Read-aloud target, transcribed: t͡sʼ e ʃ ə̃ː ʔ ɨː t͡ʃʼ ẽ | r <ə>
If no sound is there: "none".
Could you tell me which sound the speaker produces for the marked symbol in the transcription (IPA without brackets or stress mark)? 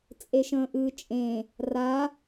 a